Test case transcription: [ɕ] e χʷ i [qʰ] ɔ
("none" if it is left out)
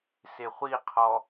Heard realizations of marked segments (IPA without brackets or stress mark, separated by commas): s, qʰ